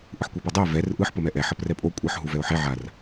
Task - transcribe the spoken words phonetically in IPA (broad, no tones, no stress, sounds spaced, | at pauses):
ʔ ɯ ħ kʷ e p a dˤ ɛ ɪ̯ v ɛ r ʔ ɯ ħ p ʌ m ɛ ʔ ɛ ħ ʌ p r ɛ pʼ o kʷʼ ʌ ħ ɦ u v ɛ ʊ̯ ħ e ʕ a r